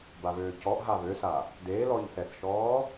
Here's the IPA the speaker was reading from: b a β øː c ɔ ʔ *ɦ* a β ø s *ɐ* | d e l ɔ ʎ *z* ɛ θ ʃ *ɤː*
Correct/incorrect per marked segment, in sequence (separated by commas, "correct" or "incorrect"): correct, incorrect, incorrect, incorrect